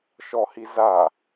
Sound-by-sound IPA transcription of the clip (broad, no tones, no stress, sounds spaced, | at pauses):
ʃ ɔ h i z a